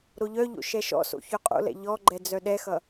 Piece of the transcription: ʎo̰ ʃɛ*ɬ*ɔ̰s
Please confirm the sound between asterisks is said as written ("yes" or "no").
no